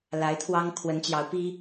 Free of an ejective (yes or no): yes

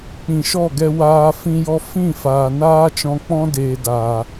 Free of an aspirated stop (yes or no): yes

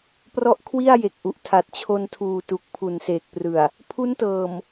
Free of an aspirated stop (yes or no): no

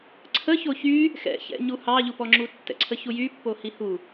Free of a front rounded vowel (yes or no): no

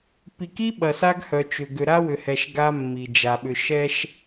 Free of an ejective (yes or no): yes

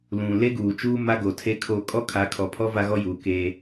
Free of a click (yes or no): yes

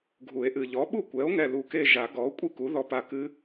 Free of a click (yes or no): yes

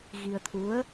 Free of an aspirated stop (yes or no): no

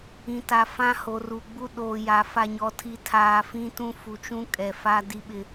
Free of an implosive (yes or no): no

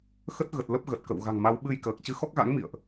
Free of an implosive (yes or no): no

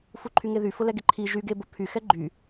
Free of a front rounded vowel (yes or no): no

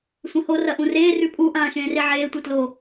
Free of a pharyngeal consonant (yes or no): no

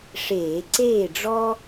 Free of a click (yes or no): no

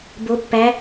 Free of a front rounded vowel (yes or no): yes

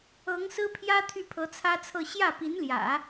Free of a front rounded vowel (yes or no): no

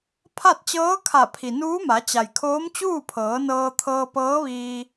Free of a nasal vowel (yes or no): yes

